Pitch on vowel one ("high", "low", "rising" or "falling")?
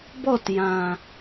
falling